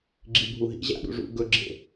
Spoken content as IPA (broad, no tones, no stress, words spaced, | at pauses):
ɡ͡ǁibʱuɦḭʑa̰ ɗṵʐṵɡɵɡ͡ǁḛ